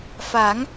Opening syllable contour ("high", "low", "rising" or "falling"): rising